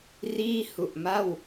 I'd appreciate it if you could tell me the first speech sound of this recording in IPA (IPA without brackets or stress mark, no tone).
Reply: r